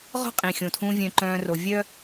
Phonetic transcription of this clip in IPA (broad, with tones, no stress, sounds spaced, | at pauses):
ʁ ɔ̤˦ qʼ ĩ˨ xʲ õ˨ tʰ ũ˧ vʲ œ̃˦ ǃ œ̃ː˦ r o˧ vʲ œ˦